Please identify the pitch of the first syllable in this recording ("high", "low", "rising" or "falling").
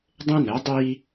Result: high